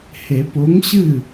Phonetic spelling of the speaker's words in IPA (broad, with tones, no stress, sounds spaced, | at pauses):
h e˨˩˦ p o˨˥ ŋ ɕ ɨ˥˨